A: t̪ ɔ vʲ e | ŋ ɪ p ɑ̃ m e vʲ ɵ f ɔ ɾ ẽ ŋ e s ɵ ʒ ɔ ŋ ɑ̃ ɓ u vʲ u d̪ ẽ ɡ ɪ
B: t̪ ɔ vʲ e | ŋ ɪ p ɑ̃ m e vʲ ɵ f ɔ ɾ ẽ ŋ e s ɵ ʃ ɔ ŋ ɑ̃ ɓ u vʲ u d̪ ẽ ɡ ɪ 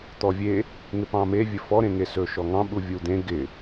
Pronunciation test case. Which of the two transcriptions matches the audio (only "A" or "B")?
B